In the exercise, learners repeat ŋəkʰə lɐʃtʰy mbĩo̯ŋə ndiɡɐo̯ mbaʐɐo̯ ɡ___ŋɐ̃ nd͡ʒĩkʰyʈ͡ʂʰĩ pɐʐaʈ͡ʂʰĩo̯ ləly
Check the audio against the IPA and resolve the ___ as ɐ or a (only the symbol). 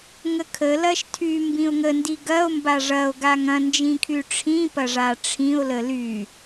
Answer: a